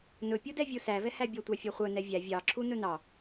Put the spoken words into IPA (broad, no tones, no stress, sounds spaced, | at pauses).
n ɵ pʲ u d ɛ vʲ u s æ v ɛ h æ bʲ ɔ tʷ ɑ fʲ œ χʷ œ n ɛ vʲ æ vʲ ɑ ǁʰ u n ɵ n ɑ